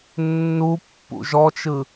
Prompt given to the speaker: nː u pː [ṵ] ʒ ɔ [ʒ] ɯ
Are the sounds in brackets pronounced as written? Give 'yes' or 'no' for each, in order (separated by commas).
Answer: yes, no